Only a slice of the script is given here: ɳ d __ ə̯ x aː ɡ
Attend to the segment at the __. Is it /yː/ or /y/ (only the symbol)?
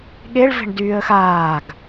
yː